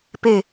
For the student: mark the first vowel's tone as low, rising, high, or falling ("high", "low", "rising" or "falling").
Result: falling